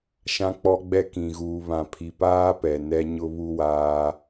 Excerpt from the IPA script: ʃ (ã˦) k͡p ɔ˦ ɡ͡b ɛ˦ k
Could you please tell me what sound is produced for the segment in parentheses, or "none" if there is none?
ã˦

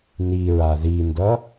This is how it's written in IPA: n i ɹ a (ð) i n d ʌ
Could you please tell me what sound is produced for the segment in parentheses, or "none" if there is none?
ð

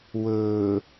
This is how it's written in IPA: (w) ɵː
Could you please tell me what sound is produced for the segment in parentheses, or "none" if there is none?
w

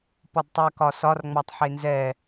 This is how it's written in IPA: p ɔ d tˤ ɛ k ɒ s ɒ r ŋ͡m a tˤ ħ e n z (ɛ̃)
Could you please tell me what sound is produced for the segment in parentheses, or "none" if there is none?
ɛ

